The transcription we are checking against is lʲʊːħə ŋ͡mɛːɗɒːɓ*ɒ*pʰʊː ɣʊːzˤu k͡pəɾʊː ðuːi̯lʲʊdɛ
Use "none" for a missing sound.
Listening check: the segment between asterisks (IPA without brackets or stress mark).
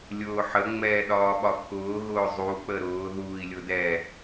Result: ɒ